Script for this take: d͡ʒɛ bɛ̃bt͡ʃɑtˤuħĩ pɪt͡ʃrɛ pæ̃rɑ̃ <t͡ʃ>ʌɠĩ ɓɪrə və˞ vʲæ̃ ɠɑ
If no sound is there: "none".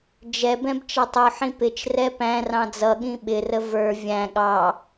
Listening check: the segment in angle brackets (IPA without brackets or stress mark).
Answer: d͡z